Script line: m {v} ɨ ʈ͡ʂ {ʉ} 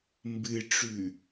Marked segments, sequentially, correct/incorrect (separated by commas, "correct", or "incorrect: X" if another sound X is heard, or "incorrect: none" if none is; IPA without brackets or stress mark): incorrect: b, correct